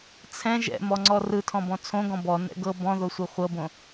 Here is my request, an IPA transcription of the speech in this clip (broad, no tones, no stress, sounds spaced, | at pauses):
t͡sʰ ɛ̃ ʒ ɛ̰ m ɔ ŋ͡ǀ ɔ r ɯ tʰ ɔ̃ b ɔ̃ t͡sʰ õ ɡ ɔ̃ b ɔ n ɛ̰ ɡ ɤ b ɔ̃ ð o sʷ ɯ χʷ ɤ b õ